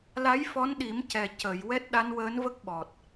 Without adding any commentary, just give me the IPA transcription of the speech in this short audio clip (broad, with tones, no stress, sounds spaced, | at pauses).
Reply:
l a˧˥ j f ɔ˧˥ n ɗ i˨˩˦ m c ɛ˨˩ c ə˨˩˨ j w ɛ˦˥ t̚ ɗ a˧˥ n w əː˧˥ n v ə˦˥ k̚ ɓ ɔ˨˩ t̚